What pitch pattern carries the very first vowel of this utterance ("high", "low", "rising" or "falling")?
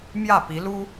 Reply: falling